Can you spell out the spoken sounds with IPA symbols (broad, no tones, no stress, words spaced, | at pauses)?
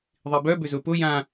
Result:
ðˤibœ bʏzʊpʊ jã